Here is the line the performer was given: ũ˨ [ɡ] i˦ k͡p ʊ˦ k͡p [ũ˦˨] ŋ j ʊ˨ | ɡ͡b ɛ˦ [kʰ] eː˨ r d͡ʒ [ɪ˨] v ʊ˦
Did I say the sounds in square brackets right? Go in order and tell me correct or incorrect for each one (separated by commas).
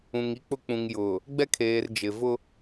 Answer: incorrect, incorrect, correct, correct